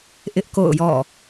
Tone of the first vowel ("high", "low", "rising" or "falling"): high